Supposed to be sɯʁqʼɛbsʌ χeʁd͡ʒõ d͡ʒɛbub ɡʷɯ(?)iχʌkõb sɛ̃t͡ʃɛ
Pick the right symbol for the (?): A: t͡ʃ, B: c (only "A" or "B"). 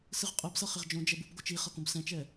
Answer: A